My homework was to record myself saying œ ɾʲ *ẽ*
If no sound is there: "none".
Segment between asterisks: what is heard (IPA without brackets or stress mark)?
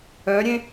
ẽ